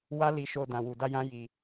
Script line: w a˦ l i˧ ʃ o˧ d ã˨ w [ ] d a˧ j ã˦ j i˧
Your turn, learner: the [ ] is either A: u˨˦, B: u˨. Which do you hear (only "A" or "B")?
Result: B